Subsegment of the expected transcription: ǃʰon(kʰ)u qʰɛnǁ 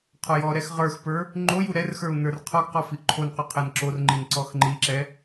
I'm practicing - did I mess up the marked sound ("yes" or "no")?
yes